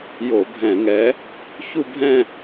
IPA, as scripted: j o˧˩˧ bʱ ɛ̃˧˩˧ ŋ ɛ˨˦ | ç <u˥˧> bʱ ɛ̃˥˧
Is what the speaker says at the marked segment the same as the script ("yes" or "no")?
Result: yes